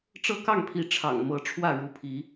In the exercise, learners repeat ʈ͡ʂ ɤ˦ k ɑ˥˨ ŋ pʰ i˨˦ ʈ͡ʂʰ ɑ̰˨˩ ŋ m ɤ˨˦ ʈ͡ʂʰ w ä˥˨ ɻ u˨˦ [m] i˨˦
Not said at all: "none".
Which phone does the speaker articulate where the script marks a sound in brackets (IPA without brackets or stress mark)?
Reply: pʰ